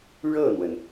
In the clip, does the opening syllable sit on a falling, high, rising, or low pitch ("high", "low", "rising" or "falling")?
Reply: falling